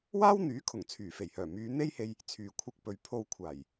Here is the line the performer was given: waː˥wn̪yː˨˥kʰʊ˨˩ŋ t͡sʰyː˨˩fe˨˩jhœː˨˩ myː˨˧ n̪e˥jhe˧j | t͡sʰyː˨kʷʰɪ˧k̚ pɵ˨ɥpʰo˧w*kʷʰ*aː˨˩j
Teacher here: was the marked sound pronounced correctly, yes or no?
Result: yes